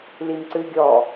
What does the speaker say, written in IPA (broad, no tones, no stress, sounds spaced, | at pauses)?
l i m ǀ ɨ ɡʲ ɔ